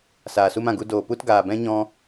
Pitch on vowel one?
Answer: low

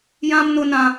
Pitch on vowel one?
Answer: high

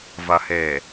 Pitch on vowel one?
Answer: low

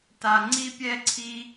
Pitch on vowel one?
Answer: low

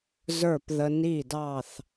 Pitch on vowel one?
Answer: falling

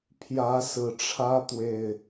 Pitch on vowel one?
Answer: rising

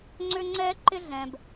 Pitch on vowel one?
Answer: high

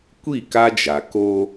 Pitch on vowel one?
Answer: falling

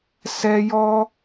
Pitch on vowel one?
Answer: high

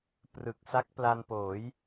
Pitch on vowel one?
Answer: low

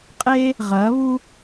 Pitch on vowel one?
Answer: high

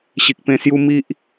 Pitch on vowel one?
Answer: low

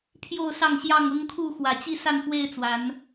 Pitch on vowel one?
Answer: falling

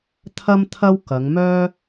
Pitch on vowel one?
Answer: high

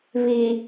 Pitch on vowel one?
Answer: low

